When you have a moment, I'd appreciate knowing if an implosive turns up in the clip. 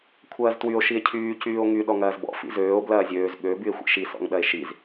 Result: yes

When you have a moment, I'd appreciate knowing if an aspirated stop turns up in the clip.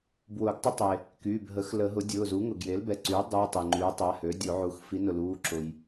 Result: no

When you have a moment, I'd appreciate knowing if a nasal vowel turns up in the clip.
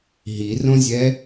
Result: yes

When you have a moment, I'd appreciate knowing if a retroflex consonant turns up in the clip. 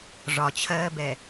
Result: yes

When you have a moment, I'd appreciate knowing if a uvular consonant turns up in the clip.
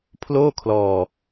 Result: no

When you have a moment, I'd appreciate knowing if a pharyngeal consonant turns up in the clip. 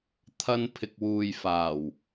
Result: no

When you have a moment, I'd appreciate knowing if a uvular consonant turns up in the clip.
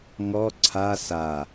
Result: no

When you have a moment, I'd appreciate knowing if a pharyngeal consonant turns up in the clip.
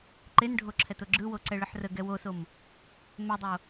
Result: yes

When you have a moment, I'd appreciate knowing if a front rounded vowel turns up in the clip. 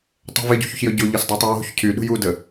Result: yes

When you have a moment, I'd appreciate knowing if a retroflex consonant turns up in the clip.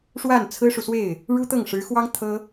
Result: yes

